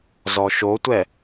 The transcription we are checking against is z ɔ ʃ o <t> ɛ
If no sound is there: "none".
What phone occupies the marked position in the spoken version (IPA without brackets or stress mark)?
tʷ